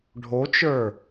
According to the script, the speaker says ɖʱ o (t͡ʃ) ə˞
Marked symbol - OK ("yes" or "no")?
yes